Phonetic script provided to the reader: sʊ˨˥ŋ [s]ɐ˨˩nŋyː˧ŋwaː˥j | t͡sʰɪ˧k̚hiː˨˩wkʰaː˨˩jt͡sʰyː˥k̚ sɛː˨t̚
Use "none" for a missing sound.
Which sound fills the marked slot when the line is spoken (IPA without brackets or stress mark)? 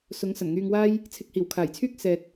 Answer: s